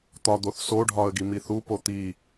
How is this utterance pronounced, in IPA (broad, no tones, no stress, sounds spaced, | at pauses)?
t̪ ɒ d̪ o θ s o ɖʱ ɒ ə̯ ɡ i m i θ u p o t̪ i